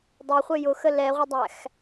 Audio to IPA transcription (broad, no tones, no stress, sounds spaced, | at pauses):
dˤ ɛ χʷ ɘ j ʊ x ə l ɛ ʁʷ ə dˤ æ x